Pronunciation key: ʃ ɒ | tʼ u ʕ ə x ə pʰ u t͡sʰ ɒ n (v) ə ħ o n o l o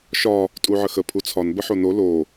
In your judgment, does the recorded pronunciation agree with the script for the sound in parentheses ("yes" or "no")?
no